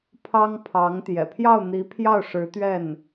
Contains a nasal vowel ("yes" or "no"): no